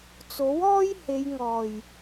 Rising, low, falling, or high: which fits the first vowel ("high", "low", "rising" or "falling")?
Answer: rising